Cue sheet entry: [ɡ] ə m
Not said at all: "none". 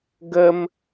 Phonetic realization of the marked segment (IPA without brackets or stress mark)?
ɡ